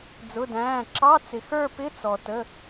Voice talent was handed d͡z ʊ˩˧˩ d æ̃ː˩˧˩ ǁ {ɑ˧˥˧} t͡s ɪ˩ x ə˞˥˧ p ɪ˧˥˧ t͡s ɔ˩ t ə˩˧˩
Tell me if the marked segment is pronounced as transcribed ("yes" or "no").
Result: yes